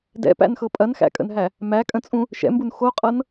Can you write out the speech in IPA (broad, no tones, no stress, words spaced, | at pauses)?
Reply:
dɛ̰pæ̰nxɤ pʼɐnxæ̰kʼə̰nɦæ | mækʼə̃t͡sʼũ | ʃɛ̰mbun xoqʼɤn